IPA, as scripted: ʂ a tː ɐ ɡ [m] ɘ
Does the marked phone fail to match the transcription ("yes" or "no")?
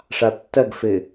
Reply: yes